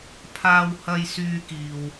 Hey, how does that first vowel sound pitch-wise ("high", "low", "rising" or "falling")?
high